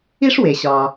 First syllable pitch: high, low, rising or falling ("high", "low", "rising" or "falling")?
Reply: high